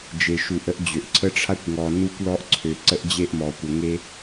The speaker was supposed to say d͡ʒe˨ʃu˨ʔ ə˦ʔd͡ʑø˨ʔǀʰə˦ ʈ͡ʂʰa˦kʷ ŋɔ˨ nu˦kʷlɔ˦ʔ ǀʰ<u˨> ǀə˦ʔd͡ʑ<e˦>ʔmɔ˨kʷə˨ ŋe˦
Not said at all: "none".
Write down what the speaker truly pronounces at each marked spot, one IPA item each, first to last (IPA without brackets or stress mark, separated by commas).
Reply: ø˨, e˦